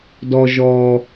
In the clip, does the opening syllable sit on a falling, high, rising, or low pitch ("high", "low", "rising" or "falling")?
low